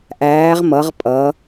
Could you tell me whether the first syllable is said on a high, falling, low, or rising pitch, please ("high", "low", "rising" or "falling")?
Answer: rising